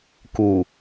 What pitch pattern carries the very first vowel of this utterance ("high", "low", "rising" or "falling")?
low